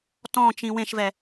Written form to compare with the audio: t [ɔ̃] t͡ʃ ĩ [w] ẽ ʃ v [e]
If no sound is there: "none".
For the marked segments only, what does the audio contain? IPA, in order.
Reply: ɔ̃, w, ɛ

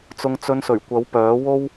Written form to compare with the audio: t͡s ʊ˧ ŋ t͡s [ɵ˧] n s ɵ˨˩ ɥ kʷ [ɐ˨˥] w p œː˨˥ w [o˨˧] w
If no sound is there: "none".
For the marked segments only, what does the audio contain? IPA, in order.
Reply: ɵ˧, ɐ˨˥, o˥

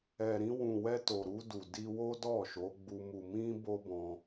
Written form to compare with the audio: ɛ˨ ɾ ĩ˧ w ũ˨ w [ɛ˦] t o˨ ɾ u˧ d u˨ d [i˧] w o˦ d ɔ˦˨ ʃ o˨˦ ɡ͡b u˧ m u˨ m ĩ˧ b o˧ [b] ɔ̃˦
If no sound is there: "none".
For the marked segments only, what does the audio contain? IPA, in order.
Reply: ɛ˧, i˧, b

